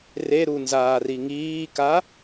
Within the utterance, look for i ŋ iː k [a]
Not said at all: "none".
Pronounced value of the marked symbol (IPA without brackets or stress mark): a